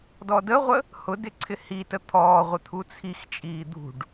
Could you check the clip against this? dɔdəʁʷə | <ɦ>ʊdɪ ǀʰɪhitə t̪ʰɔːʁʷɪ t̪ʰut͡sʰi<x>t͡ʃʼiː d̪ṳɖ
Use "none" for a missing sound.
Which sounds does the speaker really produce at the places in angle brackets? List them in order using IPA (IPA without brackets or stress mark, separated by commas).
h, x